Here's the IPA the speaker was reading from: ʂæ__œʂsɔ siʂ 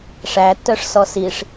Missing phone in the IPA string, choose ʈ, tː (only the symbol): tː